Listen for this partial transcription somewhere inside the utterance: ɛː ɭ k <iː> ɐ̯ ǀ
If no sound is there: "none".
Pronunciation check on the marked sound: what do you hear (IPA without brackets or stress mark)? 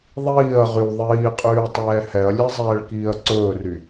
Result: iː